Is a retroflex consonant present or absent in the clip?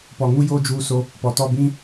absent